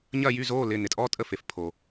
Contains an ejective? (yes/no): yes